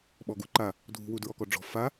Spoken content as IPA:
ɓ ɔ ɡ u ǃ a | dʱ ṳ w u d ɹ ɔ k ɔ ɖ͡ʐ ɔ̤ f a

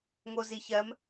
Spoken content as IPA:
ŋ o z i ç ɜ m

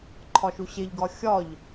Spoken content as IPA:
ǃʰ ɒ ʃ u ɕ e ʎ ɡ ɒ xʲ ɒ ʎ

